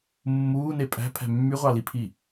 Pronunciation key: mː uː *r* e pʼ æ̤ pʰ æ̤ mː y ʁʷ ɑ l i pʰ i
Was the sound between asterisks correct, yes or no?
no